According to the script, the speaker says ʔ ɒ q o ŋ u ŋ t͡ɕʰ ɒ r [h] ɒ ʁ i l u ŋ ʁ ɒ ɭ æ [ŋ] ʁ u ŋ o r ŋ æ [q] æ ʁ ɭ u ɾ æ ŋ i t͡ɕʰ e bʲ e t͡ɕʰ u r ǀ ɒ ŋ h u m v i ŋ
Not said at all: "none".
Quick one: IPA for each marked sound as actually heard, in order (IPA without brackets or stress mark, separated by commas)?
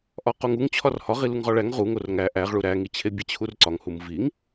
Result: h, ŋ, ʔ